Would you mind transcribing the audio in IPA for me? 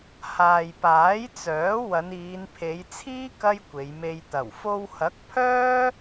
h aː˨ j p aː˨˥ j t͡s œː˨˥ w ɐ˨˧ n iː˨˧ n pʰ e˨˧ j t͡sʰ iː˥ k ɐ˥ j kʷ e˨˧ j m e˧ j t̪ ɐ˨˩ w f o˧ w h ɐ˨˥ k̚ pʰ œː˥

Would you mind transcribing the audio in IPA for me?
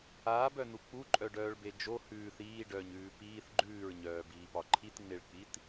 aː b œ n u k͡p u ǃʼ œ ɖ œː ɭ b e d͡ʒ o h ʉː θ iː ɖ œː ɲ ʉː p iː θ ɡ͡ǃ ʉː ɹ ɲ œː b iː p ɒ ǃʰ i t ŋ͡m e ɭ k͡p i t

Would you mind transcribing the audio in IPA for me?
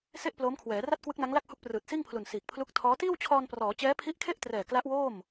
s e˥˩ ʔ p l oː˦˥ m kʰ w ɛː˩˦ r a˥˩ t̚ k w ɯ˦˥ k̚ n a˦˥ ŋ l a˥˩ k̚ h u˦˥ k̚ p r ɯː˨˩ t̚ s iː˥˩ ŋ pʰ l u˨˩ n s iː˨˩ k̚ pʰ l u˦˥ k̚ tʰ ɔː˦˥ t iː˥˩ w t͡ɕʰ ɔː˧ n p r ɔː˩˦ t͡ɕ ɛː˦˥ pʰ i˦˥ ʔ kʰ e˥˩ ʔ t r ɛː˨˩ k l a˦˥ ʔ w oː˥˩ m

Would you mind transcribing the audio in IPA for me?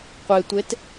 qʷ e tʷ e t

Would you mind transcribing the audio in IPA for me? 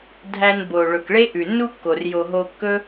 dʱ æ˧ n b o˨ ɭ ɵ˨ k ɭ e˦ ʔ ʉ˨ nː u˦ kː o˨ r j o˨ ɦ o˧ kː ɵ˦

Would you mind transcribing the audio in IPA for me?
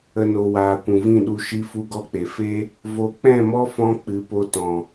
ə˨ n o˨ w aː˨ kʷ ũ˨ v ĩ˦˨ ɗ u˧ ʃ i˦ f u˦ ɡ ɔ˦ k͡p e˨ f e˦ | v o˨ k͡p ɛ̃˦˨ m ɔ˦ f ɔ̃˧ k͡p ɨ˨˦ p o˧ t ɔ̃˨

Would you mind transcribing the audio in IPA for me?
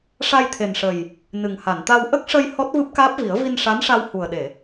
ʂ a˧ j t̪ʰ e˨˩ n ʂ ə˨˩ j | n ɨ˨˩ ŋ h a˨˩˨ n t̪ a˧ w ʔ ə˦˥ k̚ ʂ ə˧ j h ɔ˦˥ t̚ v ɨ˦˥ p̚ k aː˦˥ p̚ v i˨˩˦ ə̯ v i˧ n ʂ a˧˥ n ʂ a˧ w h u˨˩ ə̯ ɗ e˨˩˨

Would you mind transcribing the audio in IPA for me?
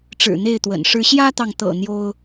ʈ͡ʂ ɻ̩˨˩ n̪ e˥˨ ɪ̯ t̪ w ə̰˨˩ n ʂ ɻ̩˦ ɕ j ä˦ t̪ ɑ˨ ŋ t̪ ɤ̰˨˩ n̪ j o˦ ʊ̯

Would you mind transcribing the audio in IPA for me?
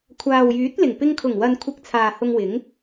kʷʰ aː˨ w j yː˨˥ t̚ l ɪ˨˩ ŋ p ɪ˧ ŋ kʰ ʊ˨˩ ŋ w ɐ˨ n kʷʰ ɪ˧ k̚ t͡sʰ aː˨ h ʊ˧ ŋ w ɪ˨˥ ŋ

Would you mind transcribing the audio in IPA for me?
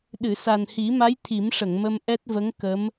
ɗ ɨ˨˩˨ s a˨˩ n h i˨˩˦ m a˧˥ j t̪ʰ i˨˩˦ m ʂ ə˨˩˨ ŋ m ə˧ m ʔ ɛ˦˥ t̚ v ə˧˥ ŋ k ə˧˥ m

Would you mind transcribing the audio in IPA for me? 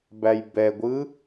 b æ j b ɛ ɡʷ ɯ

